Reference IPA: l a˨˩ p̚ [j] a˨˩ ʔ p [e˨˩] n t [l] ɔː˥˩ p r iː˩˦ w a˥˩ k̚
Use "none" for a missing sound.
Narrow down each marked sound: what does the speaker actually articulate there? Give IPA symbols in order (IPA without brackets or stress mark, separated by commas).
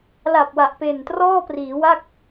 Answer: w, e˨˩, r